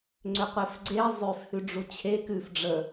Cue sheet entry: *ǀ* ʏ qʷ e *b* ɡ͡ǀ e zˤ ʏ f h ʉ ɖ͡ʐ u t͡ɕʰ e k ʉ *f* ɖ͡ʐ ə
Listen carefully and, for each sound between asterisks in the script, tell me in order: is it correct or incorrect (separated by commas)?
incorrect, incorrect, correct